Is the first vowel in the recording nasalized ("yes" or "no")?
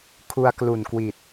no